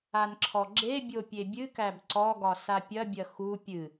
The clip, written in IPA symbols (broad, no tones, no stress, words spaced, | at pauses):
anǁʰɔɡ͡ǁebʲo pʲebʲɨkæb ǀɔɡɒ sapʲɐbʲɐ xu pʲɨ